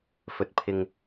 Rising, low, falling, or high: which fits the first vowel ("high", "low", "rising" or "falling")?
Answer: low